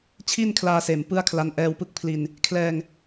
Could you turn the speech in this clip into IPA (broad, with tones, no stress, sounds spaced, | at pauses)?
t͡ɕʰ i˥˩ n kʰ l aː˧ s eː˨˩ m p ɯ˥˩ a̯ kʰ l a˦˥ n ʔ ɛː˧ w p ɯ˦˥ k̚ pʰ l i˧ n | kʰ l ɛː˧ ŋ